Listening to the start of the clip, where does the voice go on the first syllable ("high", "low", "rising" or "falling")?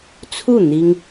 falling